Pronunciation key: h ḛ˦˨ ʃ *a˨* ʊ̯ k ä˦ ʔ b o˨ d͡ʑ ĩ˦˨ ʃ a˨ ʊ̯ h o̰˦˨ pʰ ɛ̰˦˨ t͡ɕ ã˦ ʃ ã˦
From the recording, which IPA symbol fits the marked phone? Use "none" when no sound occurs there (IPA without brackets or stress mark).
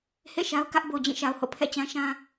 a˦